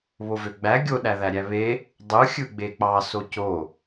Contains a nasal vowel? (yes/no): no